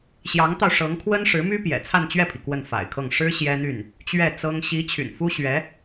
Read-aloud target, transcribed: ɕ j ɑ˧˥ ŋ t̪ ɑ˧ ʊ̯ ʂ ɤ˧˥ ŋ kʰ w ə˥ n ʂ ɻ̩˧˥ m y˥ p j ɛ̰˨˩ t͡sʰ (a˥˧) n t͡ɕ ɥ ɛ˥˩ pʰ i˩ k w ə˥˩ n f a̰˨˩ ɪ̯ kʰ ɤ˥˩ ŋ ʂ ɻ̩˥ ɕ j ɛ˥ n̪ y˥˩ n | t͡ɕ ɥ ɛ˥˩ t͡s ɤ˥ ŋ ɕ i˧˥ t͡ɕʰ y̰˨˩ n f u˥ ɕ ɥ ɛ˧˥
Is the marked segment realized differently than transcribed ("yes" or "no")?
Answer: no